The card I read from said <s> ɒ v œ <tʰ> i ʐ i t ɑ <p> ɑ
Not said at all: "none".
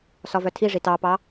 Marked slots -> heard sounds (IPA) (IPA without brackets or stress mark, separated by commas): s, tʰ, p